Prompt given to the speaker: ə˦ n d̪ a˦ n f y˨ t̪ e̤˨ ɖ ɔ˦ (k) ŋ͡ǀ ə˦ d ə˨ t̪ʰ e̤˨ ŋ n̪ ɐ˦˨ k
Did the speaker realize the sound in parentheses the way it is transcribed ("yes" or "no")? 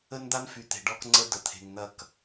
yes